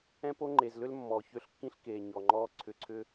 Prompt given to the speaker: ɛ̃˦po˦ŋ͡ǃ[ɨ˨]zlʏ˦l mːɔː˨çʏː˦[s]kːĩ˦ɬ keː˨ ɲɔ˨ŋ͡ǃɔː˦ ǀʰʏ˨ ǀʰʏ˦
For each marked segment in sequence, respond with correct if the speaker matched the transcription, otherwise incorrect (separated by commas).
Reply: incorrect, incorrect